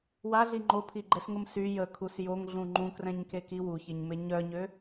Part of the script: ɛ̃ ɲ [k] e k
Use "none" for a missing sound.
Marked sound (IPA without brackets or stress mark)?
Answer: k